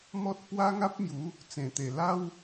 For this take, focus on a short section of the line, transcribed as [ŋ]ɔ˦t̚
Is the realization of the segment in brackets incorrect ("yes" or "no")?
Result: yes